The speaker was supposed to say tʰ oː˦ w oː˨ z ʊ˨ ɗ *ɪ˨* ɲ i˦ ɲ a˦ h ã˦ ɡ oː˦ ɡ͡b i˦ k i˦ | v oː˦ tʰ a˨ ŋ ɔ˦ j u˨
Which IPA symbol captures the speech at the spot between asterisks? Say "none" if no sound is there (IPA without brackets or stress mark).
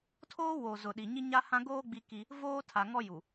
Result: i˨